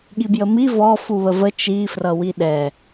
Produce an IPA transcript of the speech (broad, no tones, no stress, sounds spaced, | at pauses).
ɠ i b j ə m i v ɔ f u β ə v ə t͡ʃ i f r ʌ w i ɗ ɛ